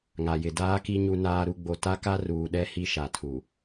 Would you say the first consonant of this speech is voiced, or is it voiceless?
voiced